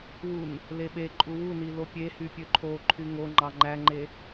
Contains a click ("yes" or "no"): yes